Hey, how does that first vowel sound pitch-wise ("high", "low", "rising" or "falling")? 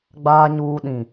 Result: low